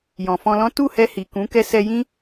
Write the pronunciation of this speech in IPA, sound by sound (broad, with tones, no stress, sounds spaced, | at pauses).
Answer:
j ɔ̃˨ f ɔ̃˧ l ɔ̃˦ t u˦˨ h ɛ˧ h i˨ k ũ˨˦ k ɛ˧ s ɛ˧ j ĩ˦